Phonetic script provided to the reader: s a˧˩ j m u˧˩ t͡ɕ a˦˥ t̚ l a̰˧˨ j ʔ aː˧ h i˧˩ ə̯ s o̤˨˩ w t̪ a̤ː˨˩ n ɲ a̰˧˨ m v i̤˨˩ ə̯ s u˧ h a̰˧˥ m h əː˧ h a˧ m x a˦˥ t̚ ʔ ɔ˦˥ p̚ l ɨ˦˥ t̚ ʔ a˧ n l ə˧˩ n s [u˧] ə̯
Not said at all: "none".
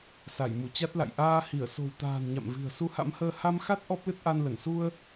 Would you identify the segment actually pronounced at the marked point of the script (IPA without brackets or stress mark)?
u˧